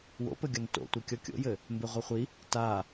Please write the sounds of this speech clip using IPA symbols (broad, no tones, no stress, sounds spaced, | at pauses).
w o̰ p ɘ ɡʲ ɒ n t o̰ tʷ ɜ kʲ ɔ kʲ o̰ j ɘ | m b e ʁʷ e χʷ i | t a